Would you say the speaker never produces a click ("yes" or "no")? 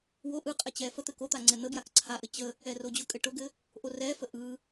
no